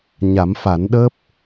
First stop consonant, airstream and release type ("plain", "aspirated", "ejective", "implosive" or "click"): implosive